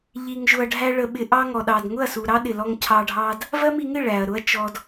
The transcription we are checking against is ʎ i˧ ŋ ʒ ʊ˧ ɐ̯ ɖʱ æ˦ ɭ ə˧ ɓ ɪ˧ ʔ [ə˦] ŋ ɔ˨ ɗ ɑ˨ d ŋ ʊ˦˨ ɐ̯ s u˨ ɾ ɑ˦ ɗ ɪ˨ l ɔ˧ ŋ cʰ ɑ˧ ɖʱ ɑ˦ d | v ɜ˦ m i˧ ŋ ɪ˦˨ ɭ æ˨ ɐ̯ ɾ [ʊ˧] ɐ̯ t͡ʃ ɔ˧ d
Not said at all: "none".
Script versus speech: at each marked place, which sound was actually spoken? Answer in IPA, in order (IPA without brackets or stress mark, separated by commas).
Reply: ɑ˦, ʊ˦